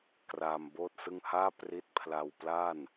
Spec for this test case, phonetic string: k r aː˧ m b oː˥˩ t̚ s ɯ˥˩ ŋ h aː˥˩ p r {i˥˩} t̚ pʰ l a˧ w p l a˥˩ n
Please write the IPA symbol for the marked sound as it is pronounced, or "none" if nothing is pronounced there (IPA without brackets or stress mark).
i˦˥